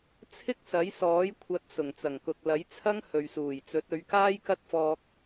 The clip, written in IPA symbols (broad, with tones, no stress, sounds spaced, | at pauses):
t͡sʰ ɪ˥ k̚ s ɐ˨˥ j s ɔː˨˥ j kʷʰ ɐ˨˥ t̚ s ʊ˨˩ ŋ t͡s ɐ˨˩ ŋ k ʊ˨ k̚ l ɐ˨˥ j t͡sʰ ɐ˥ ŋ h ɵ˨ ɥ s uː˨˩ j t͡s ɵ˨˥ t̚ ɵ˨˧ ɥ k aː˥ j k ɐ˥ t̚ f ɔː˧ k̚